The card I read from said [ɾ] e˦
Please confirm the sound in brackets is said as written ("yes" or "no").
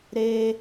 yes